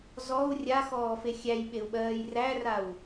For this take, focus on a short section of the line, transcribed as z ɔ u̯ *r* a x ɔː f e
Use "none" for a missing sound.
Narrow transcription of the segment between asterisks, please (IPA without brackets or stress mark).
rʲ